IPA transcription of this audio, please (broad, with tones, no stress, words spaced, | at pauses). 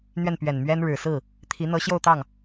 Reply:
n̪ɥɛ˥˩npɥɛ˨˩nmɥɛ˥nɻɻ̩˨˩ sɹ̩˥˩ | t̪ʰi˧˥ n̪ɤ˧˥ɕjo˥˧ʊ̯t̪ɑ˥˩ŋ